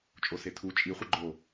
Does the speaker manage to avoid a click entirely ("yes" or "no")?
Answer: no